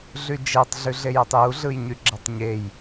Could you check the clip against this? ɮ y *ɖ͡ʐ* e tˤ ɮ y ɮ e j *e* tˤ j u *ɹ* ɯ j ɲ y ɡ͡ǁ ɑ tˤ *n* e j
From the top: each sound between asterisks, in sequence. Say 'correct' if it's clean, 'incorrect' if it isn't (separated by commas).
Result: incorrect, correct, incorrect, incorrect